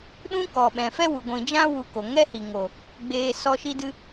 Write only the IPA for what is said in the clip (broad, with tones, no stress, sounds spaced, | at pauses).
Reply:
ɗ ũ˦ k ɔ˨ ɓ ɛ̃˨ f ɛ˦ w u˨ ɡʷ ĩ˨ d͡ʒ ã˦ w u˧ k o˨ ŋ ɛ˦ h i˨ ŋ o˨ | ɡ͡b eː˧ s ɔ˦ ʃ i˦ d ɨ˦